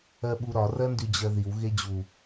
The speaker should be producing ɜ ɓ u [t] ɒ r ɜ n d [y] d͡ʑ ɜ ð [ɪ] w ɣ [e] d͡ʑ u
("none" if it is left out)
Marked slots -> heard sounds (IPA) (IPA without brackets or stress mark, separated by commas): ɾ, y, i, e